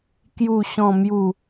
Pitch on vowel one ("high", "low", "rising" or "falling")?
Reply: low